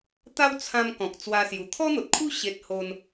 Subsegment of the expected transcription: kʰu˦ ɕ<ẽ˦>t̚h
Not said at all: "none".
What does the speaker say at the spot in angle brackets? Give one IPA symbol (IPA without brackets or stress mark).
e˦